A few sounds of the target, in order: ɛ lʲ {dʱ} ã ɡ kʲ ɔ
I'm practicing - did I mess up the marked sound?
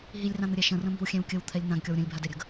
yes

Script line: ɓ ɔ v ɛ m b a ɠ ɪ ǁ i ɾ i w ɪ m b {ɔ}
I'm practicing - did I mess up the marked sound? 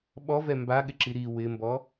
no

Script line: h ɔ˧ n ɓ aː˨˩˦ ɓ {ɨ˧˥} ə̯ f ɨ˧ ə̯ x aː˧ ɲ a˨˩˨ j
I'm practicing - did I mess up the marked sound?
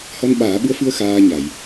no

